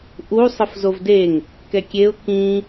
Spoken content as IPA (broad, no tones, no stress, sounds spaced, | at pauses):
ʔ u sˤ ɯ f z o v d e ŋ | k ɛ kʲ e ʊ̯ k ĩ